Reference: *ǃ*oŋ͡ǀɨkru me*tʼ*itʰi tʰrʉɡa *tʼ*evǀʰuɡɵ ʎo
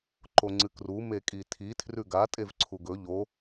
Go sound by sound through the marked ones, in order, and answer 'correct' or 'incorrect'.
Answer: correct, incorrect: kʼ, correct

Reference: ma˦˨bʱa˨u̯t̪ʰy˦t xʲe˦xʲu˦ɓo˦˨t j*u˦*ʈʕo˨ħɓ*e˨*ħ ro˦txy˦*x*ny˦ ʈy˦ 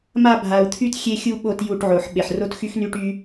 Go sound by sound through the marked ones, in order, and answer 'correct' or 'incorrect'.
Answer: incorrect: u˦˨, correct, correct

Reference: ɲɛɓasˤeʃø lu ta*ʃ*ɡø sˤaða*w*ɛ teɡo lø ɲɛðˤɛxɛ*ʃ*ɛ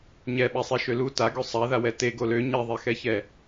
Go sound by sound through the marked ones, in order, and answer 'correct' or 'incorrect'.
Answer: incorrect: none, correct, incorrect: ç

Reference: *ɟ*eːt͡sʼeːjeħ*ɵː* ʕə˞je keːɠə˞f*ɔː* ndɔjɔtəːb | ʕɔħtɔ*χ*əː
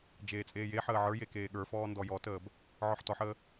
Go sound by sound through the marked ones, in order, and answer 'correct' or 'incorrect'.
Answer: incorrect: d͡ʒ, incorrect: əː, correct, incorrect: ħ

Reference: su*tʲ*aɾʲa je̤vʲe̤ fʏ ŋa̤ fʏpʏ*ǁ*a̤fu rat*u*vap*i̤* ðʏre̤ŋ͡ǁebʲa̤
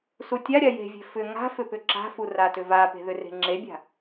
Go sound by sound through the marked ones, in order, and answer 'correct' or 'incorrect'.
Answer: correct, correct, incorrect: ʏ, incorrect: e̤

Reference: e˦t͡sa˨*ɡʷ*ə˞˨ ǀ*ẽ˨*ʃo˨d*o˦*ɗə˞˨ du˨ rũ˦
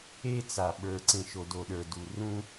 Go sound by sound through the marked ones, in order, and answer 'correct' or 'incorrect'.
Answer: incorrect: ɓ, correct, incorrect: o˨

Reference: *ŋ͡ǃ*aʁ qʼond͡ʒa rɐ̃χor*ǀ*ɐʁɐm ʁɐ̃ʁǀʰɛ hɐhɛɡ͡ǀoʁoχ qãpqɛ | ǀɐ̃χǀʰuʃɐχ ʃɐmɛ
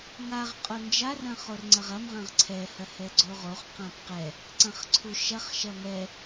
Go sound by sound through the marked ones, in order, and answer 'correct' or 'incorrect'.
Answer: incorrect: ŋ, incorrect: ŋ͡ǀ

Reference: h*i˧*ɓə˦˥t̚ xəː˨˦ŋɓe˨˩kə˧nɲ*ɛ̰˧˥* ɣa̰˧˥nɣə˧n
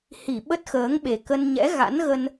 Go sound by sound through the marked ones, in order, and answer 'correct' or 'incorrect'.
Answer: incorrect: i˧˩, correct

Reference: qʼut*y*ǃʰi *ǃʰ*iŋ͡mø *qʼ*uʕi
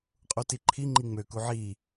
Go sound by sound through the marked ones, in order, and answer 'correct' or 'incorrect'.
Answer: incorrect: i, incorrect: ŋ͡ǃ, incorrect: k

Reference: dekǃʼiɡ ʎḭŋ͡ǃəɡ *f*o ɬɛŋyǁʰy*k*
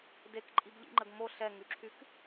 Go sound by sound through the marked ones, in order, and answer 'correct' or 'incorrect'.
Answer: incorrect: m, correct

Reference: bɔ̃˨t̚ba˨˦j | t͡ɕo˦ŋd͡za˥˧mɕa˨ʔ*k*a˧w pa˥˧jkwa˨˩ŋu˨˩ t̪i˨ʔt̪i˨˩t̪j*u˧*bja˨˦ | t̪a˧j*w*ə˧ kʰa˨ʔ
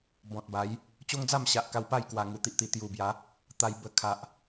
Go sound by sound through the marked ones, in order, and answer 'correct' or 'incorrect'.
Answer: correct, incorrect: u˨˩, incorrect: b

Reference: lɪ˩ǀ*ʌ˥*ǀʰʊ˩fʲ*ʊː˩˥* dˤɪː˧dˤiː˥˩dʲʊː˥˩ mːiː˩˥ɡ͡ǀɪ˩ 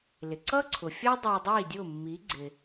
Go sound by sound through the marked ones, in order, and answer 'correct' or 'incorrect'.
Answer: correct, incorrect: ʊː˥

